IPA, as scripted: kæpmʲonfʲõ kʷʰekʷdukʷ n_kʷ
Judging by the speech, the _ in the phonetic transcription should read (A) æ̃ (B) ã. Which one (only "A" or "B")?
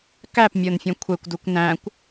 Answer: A